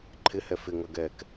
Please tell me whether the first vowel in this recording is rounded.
no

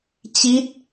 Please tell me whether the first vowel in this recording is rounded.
no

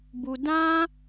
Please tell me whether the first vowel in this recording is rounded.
yes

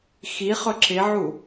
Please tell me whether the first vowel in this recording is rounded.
no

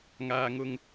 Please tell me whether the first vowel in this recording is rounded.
no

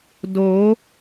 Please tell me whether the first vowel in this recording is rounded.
yes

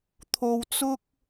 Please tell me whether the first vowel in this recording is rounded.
yes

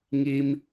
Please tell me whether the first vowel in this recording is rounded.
no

